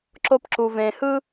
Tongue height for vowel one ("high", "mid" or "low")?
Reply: mid